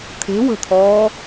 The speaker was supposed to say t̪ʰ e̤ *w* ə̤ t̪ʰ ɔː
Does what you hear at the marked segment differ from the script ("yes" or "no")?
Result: no